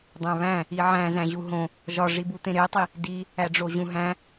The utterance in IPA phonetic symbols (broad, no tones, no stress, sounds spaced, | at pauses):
dˤ æ̃ β æ̃ | i ʕ æ̃ z æ̃ ʑ u ɦ õ | ʒ ɒ ʐ i b u t̪ ẽ ɾ e tˤ i | d i | æ ɖ͡ʐ o ʑ ũ ɦ æ̃